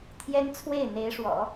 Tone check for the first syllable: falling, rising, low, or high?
high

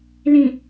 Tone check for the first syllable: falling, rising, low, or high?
low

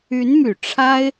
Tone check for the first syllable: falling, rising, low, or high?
rising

